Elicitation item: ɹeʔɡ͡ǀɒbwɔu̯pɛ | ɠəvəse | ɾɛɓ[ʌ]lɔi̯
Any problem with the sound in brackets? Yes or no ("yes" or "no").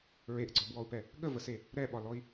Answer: yes